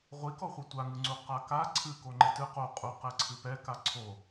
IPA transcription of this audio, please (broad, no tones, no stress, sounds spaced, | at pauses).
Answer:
ʁʷ i k ɔ χʷ ɛ tʷ a ŋ ɨ ŋ͡ǀ u q a k a ǀʰ ɨ k o ŋ͡ǃ e t ɨ q o qʼ u q ɛ ǀʰ ɨ p ɛ k a ǀʰ o